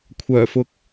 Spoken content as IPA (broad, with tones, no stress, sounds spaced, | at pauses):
kʷʰ œː˨˩ f ʊ˨ k̚